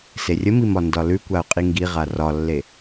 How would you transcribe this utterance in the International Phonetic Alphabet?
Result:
s e rʲ ə m i m ɒ n d ɒ l ʉ kʷ a ʊ̯ qʼ i ŋ ɡ i ʁ a r ɒ lː e

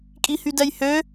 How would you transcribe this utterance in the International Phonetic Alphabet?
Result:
kʼ i h y d ɛ j h ø

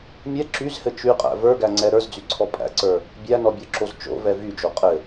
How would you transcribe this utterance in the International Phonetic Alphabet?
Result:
mʲ ɛ ǁ y z h ɘ t͡ʃ y qʼ æ̰ v ə˞ ɡ æ ŋ͡ǀ ɛ ɾ ə˞ z d͡z y ǀʰ ɔ pʼ æ̰ ǀ ə˞ | bʲ æ n ɔ bʲ ɔ ǁ o z t͡ʃ o̰ v ɛ v y d͡ʒ o qʼ ɘ

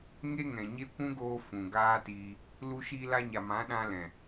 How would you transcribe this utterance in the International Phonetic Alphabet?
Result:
ŋ e˦ ŋ ɛ̃˨ ɲ e˦ kʷ ũ˦ ɡ oː˧ f ũ˨ ɡ aː˦ t iː˧ | l u˧ ʃ iː˧ l a˧ ɲ a˨ m ã˨˦ ɗ ã˧ l ɛ̃˨

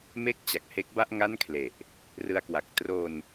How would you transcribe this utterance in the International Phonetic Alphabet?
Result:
m e˥˩ k̚ t͡ɕ a˨˩ k̚ h e˦˥ k̚ b a˥˩ ʔ ŋ a˥˩ n kʰ l e˨˩ ʔ | r ɯ˧ a̯ k w a˨˩ k̚ t r o˧ n

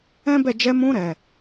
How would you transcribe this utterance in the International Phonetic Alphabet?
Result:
ɛ̃˦ b ɛ˦˨ d͡ʒ ɛ˧ m ũ˧ ɾ ɛ˨

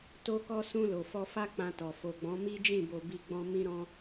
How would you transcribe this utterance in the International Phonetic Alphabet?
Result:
t o˧ k ɔ˧ s ũ˧ l o˨ f ɔ˧ f a˦ k͡p ã˧ t ɔ˨ f o˨ ɡ͡b ɔ̃˨˦ m i˦ d͡ʒ ĩ˦˨ b o˧ b i˦ ɡ͡b ɔ̃˦ m ĩ˦ ɾ ɔ̃˦

